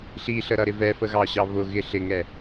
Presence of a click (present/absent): absent